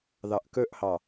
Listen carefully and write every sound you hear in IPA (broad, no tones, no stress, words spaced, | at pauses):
ðɑʔkɵʔhɑ